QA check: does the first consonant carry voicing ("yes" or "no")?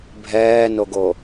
yes